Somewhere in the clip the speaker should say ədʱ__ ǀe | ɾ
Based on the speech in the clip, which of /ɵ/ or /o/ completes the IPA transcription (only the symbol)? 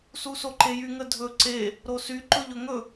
ɵ